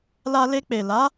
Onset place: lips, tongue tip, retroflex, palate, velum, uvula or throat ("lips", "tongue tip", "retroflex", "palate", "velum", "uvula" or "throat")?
tongue tip